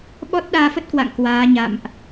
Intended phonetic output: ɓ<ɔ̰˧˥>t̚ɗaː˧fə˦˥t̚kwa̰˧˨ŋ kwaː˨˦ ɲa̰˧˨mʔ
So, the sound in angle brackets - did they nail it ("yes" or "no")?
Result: no